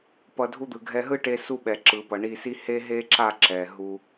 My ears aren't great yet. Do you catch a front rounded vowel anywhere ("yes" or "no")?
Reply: no